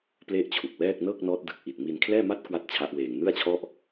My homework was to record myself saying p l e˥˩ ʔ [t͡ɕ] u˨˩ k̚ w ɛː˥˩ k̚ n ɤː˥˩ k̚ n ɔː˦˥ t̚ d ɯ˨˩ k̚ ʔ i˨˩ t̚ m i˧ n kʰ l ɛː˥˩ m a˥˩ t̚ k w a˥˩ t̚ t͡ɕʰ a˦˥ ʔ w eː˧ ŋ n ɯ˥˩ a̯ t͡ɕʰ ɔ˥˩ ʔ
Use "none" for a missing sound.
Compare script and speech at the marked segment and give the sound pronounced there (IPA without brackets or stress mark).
t͡ɕʰ